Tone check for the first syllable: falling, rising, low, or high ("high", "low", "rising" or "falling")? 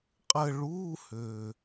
falling